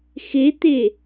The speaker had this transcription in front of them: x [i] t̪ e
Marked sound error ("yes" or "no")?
yes